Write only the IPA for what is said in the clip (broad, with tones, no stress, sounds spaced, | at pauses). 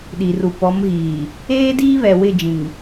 ɗ i˨ r u˨ p ɔ˨˦ m ɣ iː˨ | eː˦ d iː˦ β ɛ˨ w ɪ˦˨ d͡ʒ ĩ˨ ŋ